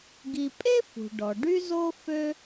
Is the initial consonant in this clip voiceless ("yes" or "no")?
no